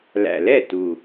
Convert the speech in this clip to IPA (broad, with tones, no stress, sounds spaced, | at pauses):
l æ̰˨˩ l ɛ˥˩ t u˨˩